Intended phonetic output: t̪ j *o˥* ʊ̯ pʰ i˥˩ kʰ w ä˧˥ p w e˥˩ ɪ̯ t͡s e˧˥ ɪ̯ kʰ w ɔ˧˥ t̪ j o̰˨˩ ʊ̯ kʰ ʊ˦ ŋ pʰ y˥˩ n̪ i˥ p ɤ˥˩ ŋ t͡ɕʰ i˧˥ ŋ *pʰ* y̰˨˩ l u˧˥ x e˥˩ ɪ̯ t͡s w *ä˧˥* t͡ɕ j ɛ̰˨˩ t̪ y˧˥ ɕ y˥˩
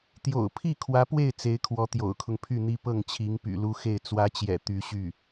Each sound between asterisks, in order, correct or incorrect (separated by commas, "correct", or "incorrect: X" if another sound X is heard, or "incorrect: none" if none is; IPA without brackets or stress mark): incorrect: o̰˨˩, incorrect: p, correct